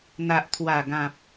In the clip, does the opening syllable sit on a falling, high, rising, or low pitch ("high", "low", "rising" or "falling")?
low